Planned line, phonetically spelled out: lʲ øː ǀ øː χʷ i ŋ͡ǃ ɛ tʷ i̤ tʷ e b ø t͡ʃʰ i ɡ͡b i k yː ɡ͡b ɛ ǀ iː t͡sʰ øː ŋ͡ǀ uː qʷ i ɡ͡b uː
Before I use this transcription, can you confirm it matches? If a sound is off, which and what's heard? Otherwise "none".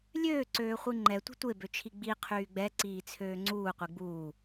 k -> qʰ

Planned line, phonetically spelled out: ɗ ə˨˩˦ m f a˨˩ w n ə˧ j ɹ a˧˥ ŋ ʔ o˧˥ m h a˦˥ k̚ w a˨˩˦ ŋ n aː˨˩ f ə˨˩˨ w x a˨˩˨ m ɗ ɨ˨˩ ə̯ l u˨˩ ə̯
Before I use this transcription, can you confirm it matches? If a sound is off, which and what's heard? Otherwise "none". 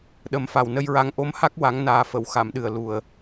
none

